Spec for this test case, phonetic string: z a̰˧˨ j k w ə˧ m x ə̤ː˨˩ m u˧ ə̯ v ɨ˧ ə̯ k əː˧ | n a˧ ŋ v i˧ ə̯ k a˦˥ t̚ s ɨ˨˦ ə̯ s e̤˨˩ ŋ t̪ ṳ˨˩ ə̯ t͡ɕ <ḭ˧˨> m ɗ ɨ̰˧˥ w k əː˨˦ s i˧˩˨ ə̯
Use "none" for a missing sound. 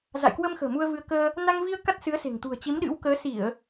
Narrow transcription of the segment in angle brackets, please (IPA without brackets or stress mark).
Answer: i˨˦